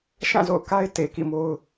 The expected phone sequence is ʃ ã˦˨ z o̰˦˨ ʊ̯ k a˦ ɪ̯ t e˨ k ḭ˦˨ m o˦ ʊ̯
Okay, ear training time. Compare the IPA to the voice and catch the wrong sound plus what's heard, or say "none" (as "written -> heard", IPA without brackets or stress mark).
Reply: none